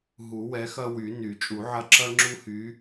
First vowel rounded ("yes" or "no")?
yes